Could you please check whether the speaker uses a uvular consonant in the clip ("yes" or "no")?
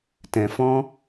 no